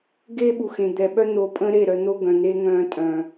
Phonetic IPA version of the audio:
ɡeː˦ɓu˨xẽ˨ d̪ɛ˨ɓœ˦n̪o˨˦pʼə̃ː˦ ɾe˦˨ɾœ˧n̪o˦ ɡœ̃˨n̪e˦ ŋœ̃ː˧tʼœ̃ː˨

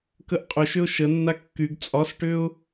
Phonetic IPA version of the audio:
kəʔqʼʏʃʏʊ̯ ʃə nːakːyɡ t͡sʼɒsʈʏʊ̯

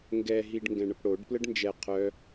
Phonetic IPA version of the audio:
ŋɡɛ ɦiɖŋɡɛ̃ɳəpɽoɖ pləɖnd͡ʒɛ qʰœ

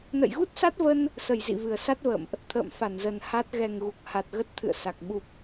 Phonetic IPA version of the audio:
nə̰˧˨jɣu˦˥t̚sa˦˥t̚və˧n | sə˨˩j zḭ˧˨vɨ˨˩ə̯sa˦˥t̚və̰ː˧˨mʔ | t̪ʰə̰ː˧˨mfa˧˩nzə˨˩n ha˦˥t̚ ɣɛ˨˩ŋ ɣu˨˩k̚ha˨˩t̚ɣə˦˥t̚ t̪ʰɨ̰˧˨ə̯ sa˨˩k̚ ɓu˨˩p̚

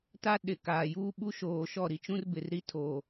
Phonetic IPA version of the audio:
ta˦ ɗɪ˨kaː˨juː˦ ɓu˦ ʃoː˨ʃɔ˦˨ ɾi˨t͡ʃũ˦rbɪ˨r ɾi˦tʰoː˨

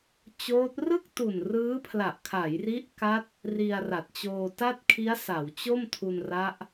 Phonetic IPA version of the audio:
t͡ɕoː˦˥t̚ rɯ˥˩k̚tu˨˩n rɯː˦˥pʰla˨˩ʔkʰa˩˦jri˦˥ʔ ka˦˥t̚ | ri˧a̯ra˨˩t̚t͡ɕoː˧ ta˥˩t̚kʰi˦˥a̯ sa˩˦wt͡ɕo˥˩mtʰu˧nra˦˥ʔ

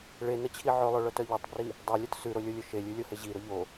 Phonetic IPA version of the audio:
ɭenət͡ɕʰi ʕɵlˠœɭœtœ ʎotˤbri | dˤœlʲœt sʉɾolʲolʲɵ ʃelʲʉlʲohe ʑiɾʊ ʎo

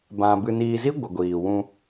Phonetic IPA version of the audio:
bã˧ bɨ˧niː˧zi˦ ɡʷə˨ɡʷiː˨wũ˧

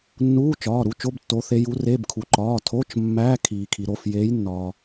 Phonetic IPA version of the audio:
nːuː˧˥˧t͡ʃɒː˩˧˩ ɾu˧˥˧t͡ʃo˧˥˧b tːo˨˦ θe˨˦ju˨˦ re˧˥˧b kʰu˩ǃɒː˩˧˩ tʰo˧˥˧t͡ʃ mːæː˧˥˧kʰiː˩kʰi˩ɾo˩˧˩f jeː˨˦jnːɒː˩

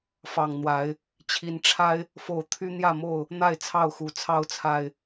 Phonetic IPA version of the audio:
fɑ˨˩ŋn̪wa˨˦ɪ̯ | t͡ɕʰi˨˦nʈ͡ʂʰa˦ɪ̯ | fo˨˦ʊ̯ t̪ʰy˦n̪jä˥˨mo˥˨ʊ̯ | n̪a˥˨ɪ̯t͡sʰɑ˥˨ʊ̯xu˨˩ t͡sʰɑ˦ʊ̯t͡sʰa˨˩ɪ̯

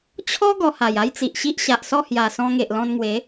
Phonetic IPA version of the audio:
t͡ɕʰɔ˦ ɡɔ˧ha˨˩ja˦jt͡si˨ʔ ɕi˦ʔ ɕa˨ʔsɔ˥˧hja˨˩ sɔ̃˧ŋe˨ʔlɔ̃˧nŋwe˨˦

